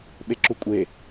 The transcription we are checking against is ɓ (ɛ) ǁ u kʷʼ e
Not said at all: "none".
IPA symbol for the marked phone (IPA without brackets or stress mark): e